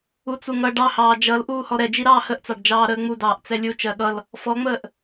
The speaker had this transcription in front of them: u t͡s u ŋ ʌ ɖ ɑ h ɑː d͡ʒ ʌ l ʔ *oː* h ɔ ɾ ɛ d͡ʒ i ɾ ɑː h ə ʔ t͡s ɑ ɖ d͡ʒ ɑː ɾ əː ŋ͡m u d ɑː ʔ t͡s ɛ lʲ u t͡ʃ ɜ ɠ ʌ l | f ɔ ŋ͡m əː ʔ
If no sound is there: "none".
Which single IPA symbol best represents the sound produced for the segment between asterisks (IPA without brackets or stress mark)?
uː